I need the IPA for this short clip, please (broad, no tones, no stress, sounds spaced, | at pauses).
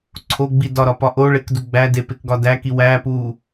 ǀʰ o ɡ͡b i d ɒ ɾ ɒ p ɒ ʔ o ɭ e k d u ɡ͡b æ d e p e k ɡ ɒ d æ k i w æ p u